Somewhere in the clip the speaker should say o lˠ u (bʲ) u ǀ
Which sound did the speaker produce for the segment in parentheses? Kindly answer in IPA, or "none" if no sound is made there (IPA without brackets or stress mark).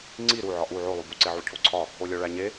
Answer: b